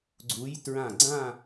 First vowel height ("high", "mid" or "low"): high